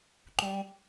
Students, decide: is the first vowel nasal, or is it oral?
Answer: nasal